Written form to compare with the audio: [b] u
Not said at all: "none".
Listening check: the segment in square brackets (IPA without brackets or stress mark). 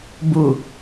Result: b